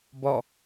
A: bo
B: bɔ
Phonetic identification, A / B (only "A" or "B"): B